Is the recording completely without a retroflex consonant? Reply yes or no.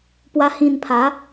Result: yes